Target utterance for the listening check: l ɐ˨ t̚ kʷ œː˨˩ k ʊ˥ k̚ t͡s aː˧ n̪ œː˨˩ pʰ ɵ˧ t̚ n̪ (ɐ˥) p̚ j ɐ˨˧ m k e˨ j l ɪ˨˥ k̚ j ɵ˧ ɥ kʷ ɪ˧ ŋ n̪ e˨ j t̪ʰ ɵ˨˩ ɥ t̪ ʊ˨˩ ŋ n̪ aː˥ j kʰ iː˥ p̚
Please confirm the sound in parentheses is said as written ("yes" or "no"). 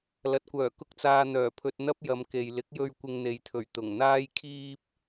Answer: yes